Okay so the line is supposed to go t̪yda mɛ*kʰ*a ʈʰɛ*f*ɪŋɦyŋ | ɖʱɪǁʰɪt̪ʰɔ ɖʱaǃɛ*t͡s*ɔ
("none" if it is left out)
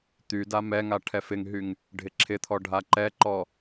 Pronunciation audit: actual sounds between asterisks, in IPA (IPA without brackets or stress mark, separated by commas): ŋ, f, ǃ